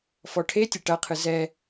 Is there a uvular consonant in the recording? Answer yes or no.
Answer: yes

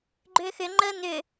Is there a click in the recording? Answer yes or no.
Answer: yes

